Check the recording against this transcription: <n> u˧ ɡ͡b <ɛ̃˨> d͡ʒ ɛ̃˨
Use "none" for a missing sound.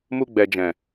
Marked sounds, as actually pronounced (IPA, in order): m, ɛ˨

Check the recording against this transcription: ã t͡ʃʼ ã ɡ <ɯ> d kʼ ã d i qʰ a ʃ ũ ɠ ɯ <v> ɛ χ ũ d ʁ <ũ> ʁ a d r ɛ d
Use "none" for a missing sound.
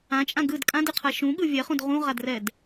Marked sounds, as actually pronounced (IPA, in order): ɯ, vʲ, ũ

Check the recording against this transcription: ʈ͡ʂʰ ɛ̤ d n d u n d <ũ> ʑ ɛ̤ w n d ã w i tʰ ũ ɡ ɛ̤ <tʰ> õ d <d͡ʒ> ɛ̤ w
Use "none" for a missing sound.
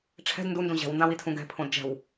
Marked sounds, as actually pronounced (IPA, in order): ũ, pʰ, d͡ʒ

